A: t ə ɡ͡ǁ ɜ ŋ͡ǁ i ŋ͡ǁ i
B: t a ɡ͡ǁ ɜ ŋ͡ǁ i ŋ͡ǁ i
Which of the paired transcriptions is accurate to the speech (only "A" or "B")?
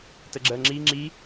A